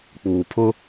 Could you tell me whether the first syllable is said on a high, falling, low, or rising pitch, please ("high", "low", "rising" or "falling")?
low